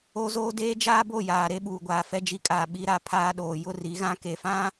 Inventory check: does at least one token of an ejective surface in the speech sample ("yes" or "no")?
yes